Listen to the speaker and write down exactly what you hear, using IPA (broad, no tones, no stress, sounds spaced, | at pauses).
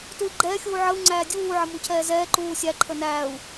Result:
t u i̯ ɡ͡ǃ ɛː xʲ uː ʕ ə u̯ ŋ͡ǀ æː dʲ uː ʕ ə m u cʰ ɛː z ɛː ǃ uː sʲ æ ǃʰ ə n æː u̯